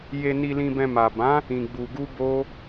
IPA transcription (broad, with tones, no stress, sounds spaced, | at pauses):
j e˨ n i˨ l ĩ˨ b ɛ̃˨ m a˨ b ã˨˦ | ĩ˨ ɡ͡b u˨ ɡ u˧ b o˧